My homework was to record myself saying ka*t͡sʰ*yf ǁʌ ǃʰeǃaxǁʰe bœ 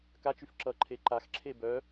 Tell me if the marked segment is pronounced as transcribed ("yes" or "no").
no